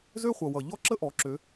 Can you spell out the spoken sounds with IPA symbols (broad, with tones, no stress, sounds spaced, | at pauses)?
z ø˥ χʷ ʌ˨˩ w ʌ˨˩ ʎ ɔ˥ ǁ ə˥ ʔ ɔ˩˧ ǁ ø˩˧